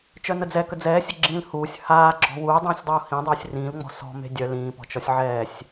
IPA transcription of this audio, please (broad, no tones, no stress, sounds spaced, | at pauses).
t͡ʃ œ n ə d͡z ɛ k ə d͡z ɛː sʲ ə ɡ͡ǁ ĩː l h uː sʲ h aː ɡ͡ǁ ɔ̤ w uː dˤ ĩː sʲ dˤ uː h ĩ dˤ uː sʲ r ĩː l ŋ͡m ɔ̤ s ɔ̤ m e̤ dʲ œ l ĩː p ɔ̤ t͡ʃ ɔ sʲ ʕ ɛː sʲ